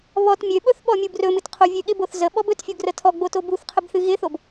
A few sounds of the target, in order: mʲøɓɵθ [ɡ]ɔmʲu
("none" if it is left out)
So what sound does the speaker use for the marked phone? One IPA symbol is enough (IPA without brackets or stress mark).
ɓ